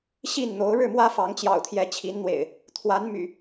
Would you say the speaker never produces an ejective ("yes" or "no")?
yes